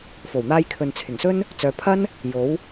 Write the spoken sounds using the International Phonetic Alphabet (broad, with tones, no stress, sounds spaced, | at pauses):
f o˨˩ w n̪ aː˧ j kʰ ɵ˨ n t͡sʰ ɪ˨˩ ŋ s ɵ˥ n | t͡s œː˨˧ pʰ ɐ˥ n | j o˨˥ w